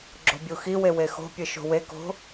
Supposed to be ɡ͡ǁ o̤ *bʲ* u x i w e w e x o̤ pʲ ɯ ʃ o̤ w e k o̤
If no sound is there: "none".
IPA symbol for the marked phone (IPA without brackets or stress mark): bʲ